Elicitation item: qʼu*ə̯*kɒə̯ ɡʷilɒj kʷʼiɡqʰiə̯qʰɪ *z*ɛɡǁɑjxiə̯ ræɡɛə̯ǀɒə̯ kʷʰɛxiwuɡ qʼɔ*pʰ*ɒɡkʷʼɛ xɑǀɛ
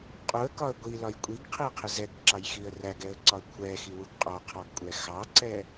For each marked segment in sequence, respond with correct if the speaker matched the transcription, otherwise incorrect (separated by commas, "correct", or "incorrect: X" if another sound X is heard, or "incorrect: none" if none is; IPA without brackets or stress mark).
correct, correct, incorrect: qʰ